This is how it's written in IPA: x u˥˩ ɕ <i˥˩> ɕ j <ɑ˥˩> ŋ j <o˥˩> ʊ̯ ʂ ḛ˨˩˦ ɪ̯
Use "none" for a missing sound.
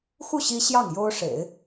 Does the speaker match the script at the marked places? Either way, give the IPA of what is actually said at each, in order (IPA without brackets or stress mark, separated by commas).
i˥, ɑ˥˩, o˥